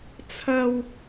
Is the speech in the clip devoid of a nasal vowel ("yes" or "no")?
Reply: yes